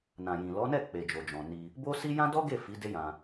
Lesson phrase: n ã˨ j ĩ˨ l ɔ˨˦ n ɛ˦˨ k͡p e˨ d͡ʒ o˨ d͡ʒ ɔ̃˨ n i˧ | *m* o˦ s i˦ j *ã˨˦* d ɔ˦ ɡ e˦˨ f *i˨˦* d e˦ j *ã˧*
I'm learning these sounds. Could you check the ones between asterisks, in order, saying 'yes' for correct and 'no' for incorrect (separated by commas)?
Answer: no, no, yes, yes